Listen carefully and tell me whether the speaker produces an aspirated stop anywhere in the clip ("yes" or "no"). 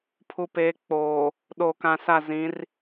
yes